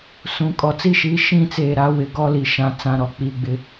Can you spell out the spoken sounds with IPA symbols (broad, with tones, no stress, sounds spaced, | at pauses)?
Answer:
s ũ˨ kʼ ɔ˨ t͡s i˦ ʃ iː˨˦ ʃ ĩ˦˨ t͡s eː˨ ɾ a˨˦ w ɪ˨ ɡ ɔ˦ l i˨ ʃ ã˨ t͡s ã˨ ɾ ɔ˨ k͡p iː˨ ɡ͡b ɪ˦